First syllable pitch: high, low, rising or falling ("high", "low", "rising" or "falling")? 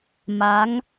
rising